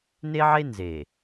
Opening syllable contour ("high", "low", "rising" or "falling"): high